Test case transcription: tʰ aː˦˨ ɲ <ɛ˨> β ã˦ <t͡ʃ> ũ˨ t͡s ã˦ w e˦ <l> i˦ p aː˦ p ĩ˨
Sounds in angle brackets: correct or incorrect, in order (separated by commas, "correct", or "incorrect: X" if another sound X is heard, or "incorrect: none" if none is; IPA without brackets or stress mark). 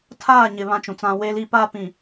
incorrect: ɪ˨, correct, correct